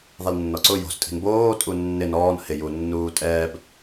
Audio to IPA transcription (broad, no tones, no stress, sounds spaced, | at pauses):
ðˤ i l nː ɔ ǀ ʊ j o̤ s tʼ i̤ n b oː tʼ u nː ɪ n ɔː n h ɪ j u nː uː tʼ ɛː b